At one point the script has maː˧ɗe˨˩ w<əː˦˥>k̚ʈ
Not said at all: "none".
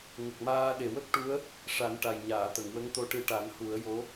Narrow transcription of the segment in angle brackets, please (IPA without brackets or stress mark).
ə˦˥